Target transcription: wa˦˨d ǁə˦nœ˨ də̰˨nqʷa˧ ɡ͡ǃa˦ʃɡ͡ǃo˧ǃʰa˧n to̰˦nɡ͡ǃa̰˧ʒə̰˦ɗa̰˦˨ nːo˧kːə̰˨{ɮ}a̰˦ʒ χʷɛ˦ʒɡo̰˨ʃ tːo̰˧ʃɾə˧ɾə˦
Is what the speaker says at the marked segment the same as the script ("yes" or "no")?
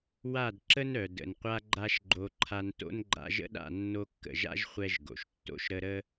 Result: no